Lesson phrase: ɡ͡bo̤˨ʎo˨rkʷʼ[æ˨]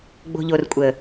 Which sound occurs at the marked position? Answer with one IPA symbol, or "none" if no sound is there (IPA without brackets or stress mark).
ə˨